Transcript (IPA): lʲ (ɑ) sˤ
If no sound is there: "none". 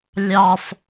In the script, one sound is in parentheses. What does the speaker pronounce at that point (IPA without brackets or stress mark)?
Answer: ɑ